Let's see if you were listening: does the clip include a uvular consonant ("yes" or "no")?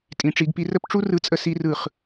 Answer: yes